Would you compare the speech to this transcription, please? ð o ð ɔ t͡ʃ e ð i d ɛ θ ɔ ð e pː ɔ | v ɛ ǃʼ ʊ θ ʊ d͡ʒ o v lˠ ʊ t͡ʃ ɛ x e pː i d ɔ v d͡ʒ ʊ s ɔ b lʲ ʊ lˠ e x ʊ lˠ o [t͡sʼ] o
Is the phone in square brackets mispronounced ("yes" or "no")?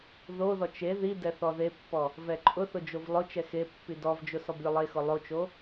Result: yes